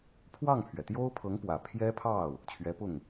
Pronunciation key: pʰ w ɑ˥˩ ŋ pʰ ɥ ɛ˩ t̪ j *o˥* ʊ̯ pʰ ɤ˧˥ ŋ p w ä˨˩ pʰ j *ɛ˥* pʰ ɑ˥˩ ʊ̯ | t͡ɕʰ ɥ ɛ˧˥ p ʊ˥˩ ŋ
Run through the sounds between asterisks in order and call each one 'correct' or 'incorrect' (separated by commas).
correct, correct